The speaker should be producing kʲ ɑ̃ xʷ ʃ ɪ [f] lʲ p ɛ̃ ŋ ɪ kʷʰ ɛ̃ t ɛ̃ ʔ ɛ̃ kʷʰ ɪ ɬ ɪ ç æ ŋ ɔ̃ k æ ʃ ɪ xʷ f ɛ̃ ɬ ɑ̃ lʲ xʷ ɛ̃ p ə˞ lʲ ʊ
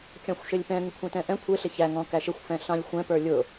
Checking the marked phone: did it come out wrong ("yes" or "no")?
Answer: yes